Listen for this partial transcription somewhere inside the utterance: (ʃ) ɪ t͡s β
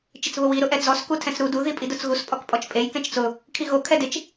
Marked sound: incorrect: t͡ʃ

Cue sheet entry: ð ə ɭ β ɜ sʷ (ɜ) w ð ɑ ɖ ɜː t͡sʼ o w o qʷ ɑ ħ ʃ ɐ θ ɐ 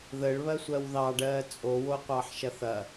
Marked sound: correct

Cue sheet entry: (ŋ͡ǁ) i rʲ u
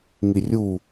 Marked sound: incorrect: ŋ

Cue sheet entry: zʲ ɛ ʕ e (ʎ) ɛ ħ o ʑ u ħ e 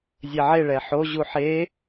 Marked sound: incorrect: ɭ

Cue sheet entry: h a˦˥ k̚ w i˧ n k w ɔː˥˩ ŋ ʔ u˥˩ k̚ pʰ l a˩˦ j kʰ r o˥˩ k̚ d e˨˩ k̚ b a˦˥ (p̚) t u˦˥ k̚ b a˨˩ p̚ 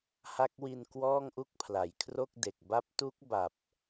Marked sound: correct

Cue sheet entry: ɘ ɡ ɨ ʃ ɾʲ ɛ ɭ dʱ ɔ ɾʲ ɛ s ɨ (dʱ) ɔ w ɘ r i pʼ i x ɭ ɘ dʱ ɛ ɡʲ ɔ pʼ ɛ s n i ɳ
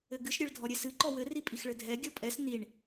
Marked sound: incorrect: ǃ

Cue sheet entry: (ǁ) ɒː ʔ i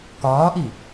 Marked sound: incorrect: k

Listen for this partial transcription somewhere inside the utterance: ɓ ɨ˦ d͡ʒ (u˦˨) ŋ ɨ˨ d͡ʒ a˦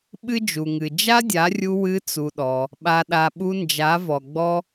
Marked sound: incorrect: u˨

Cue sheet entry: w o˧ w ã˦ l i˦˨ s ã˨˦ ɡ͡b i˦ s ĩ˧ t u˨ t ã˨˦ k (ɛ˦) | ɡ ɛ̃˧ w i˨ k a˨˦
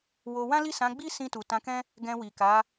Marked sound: incorrect: ɛ̃˦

